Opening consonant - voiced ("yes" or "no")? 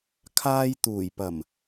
no